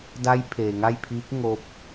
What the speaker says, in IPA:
d a˧˥ j pʰ eː˩ ŋ a˥˨ j pʰ iː˧˥ k̚ ŋ o˧˥ p̚

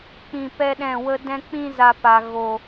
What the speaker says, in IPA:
k͡p ĩ˧ p ɛ˦ ɗ ɛ̃˦˨ w ə˦ d ɛ̃˧ k͡p ĩ˧ z a˨ p a˨ ɣ o˨

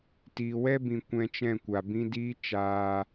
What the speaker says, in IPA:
t iː˨ w ɛ˦ b ĩ˨ kʷ ɛ̃˧ t͡ʃ ɛ̃˦˨ kʷ a˨ b ĩ˦ d iː˦ t͡ʃ aː˦

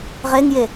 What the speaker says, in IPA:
ʁ e ŋ j e

